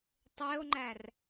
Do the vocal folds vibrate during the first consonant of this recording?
no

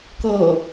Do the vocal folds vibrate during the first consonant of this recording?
no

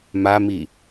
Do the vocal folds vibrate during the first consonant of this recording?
yes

